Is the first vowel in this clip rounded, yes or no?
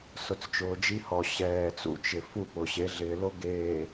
yes